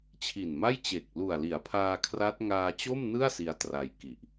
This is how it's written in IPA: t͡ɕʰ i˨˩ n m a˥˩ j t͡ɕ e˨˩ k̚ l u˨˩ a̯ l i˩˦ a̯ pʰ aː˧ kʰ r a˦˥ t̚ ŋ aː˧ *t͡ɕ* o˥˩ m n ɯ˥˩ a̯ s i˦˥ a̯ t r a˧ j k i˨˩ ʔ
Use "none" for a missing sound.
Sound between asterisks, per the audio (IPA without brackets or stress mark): t͡ɕ